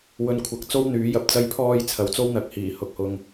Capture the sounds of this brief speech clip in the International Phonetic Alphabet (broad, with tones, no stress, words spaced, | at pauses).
wɵ˨nkʷʰɐ˨˥k̚ t͡so˥wn̪yː˨˥jɐ˨p̚ t͡sɐ˧jpʰɔː˧j t͡sʰɐ˨˥wt͡so˥wn̪ɐ˨˥k̚hiː˨˩ hʊ˨k̚hʊ˧ŋ